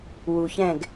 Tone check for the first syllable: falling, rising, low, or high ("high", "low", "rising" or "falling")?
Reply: low